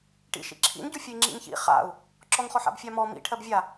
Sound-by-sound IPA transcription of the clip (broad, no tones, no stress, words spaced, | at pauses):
ʈḭʃḭ ǁʰḭnɟu fʲəi̯ŋ͡ǁḭŋçḭ χa̰u̯ | ǁɔŋχɔħa̰bfʲa mɔ mḭ ʈʰɜbvʲa